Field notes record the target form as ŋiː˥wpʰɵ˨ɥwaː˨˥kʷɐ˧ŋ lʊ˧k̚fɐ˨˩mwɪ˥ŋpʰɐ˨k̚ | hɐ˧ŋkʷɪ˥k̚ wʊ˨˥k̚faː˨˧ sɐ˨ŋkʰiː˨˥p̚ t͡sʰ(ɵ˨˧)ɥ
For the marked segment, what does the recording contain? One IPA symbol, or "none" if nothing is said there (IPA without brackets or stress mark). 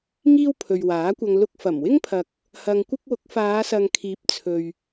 ɵ˨